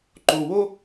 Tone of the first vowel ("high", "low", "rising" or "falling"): low